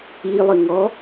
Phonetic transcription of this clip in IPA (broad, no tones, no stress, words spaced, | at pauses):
ilˠɪ ŋɔ